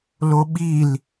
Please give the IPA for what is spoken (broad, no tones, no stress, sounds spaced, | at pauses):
l o ɓ i l